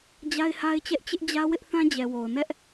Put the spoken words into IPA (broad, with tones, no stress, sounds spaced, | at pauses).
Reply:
d͡ʑ a˦ ɪ̯ h a˦ ɪ̯ t͡ɕ ɛ˦ ʔ t͡ɕ ɪ˦ ʔ d͡ʑ ä˦ w ɪ˦ ʔ θ ã˦ d͡ʑ ɛ˨ w o˨ ʊ̯ n ɛ˦ ʔ